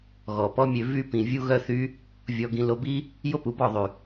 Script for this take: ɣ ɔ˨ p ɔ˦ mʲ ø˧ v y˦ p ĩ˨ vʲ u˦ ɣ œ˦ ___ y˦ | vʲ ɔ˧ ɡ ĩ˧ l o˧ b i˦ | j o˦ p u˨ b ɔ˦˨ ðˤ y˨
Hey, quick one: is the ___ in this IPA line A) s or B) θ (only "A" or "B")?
B